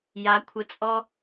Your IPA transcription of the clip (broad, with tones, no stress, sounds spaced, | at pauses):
j a˨˦ kʷʰ ə˧ t͡sʼ ɔ˦